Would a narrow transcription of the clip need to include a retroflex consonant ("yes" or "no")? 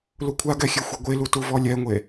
no